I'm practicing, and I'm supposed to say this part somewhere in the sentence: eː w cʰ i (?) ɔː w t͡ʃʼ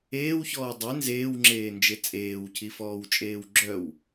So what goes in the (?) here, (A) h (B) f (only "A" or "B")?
B